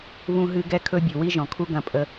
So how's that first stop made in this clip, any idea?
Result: plain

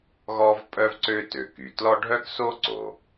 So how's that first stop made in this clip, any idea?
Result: ejective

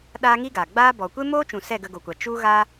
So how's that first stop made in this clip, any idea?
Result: implosive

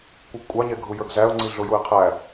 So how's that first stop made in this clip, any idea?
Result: plain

